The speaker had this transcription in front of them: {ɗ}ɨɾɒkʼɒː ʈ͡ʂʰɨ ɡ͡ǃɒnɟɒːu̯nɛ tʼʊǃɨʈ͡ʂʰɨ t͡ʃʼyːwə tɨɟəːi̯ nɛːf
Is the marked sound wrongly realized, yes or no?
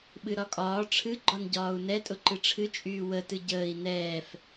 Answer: yes